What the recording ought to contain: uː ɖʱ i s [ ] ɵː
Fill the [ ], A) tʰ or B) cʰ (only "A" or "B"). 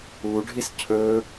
B